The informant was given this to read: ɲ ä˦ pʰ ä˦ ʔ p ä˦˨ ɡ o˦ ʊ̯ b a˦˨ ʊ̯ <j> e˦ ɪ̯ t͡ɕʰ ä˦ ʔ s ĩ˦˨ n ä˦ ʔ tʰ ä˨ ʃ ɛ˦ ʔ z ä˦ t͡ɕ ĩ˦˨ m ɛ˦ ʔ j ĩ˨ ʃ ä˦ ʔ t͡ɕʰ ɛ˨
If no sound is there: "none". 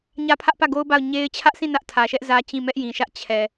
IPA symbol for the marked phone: ɲ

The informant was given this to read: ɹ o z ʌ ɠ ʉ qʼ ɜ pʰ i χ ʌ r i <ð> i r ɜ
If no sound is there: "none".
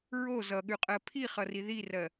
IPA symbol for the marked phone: ð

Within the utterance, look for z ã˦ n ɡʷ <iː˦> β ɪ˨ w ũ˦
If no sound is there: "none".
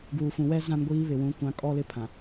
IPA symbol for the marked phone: iː˦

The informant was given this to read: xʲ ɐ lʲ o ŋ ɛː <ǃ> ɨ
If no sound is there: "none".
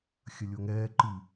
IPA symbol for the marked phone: ǃ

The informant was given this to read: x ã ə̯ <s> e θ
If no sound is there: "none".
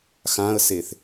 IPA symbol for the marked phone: s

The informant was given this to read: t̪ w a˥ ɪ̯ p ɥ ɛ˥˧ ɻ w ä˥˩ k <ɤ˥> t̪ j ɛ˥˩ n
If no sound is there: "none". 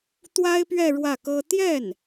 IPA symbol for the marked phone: ɤ˥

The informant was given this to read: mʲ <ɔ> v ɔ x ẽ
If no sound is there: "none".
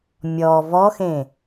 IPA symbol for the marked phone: ɔ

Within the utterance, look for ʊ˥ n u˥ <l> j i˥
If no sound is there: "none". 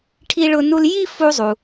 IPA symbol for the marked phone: l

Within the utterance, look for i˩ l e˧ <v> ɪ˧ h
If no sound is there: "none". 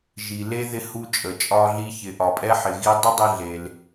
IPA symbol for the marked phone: ð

